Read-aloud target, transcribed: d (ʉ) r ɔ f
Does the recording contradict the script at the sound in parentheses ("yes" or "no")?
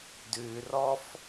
no